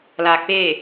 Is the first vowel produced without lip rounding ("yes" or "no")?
yes